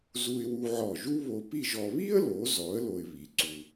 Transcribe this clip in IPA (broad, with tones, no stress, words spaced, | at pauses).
zu˧ɪ̯wu˧ʕɔ˧˩ʒu˥ βo˧pi˥˧ʒɔ˧ βi˥ə̯lo˩˧zɔ˩˧ə̯ lo˧ɪ̯βi˩˧ǀu˧